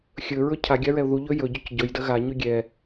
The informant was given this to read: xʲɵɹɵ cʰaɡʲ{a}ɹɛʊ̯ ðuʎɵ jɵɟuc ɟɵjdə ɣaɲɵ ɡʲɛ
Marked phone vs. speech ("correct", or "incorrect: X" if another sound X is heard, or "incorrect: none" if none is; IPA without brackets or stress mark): correct